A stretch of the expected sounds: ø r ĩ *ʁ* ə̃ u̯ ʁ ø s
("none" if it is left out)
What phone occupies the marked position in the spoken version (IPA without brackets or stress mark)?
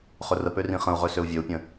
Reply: χ